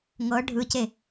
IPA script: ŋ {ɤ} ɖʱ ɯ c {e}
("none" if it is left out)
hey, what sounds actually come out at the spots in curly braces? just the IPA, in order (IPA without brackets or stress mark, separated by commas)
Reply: ɤ, e